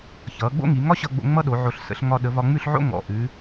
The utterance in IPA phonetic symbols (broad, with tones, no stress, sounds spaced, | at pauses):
ç ʌː˩˧ ɡ͡b o̰˥ ŋ i˩˧ ŋ ɒ˥ ɕ ʌ˧ ɡ͡b o̰˧ ŋ͡m ʌ˥ ɗ o˩˧ ʕ o˧˩ ɬ s ə̰˩˧ ɬ ŋ ɒ˧ ɗ ə˩˧ v ɒ˧ ŋ͡m ʉ˥˧ ɬ ʕ o̰˥ ŋ ɔ̰˩˧ ʔ ʉ˩˧